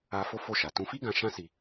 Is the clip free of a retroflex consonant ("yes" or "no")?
yes